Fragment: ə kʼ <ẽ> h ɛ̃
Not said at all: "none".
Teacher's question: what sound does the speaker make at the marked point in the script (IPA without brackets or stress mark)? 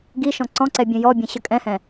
ɛ̃